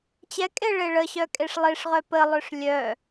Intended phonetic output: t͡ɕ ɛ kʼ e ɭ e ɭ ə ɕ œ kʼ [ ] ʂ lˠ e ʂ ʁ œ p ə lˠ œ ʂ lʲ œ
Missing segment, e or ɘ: e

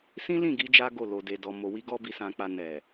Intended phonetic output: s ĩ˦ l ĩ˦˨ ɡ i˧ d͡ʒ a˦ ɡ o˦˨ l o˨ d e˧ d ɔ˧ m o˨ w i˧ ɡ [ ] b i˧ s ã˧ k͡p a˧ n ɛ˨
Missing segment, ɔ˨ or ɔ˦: ɔ˦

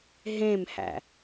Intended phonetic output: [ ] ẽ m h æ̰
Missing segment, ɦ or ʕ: ɦ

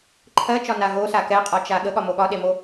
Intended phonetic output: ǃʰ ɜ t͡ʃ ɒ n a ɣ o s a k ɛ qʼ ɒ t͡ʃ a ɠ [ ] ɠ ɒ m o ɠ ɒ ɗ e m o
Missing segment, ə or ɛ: ə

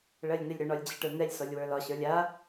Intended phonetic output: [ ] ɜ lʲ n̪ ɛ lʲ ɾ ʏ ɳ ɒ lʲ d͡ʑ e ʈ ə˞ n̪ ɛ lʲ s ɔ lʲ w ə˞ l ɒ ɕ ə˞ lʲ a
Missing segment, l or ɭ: ɭ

